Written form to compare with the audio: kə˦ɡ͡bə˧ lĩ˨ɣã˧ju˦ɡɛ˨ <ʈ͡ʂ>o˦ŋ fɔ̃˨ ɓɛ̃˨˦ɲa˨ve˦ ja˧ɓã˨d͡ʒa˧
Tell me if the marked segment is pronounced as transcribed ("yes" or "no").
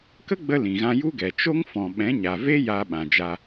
no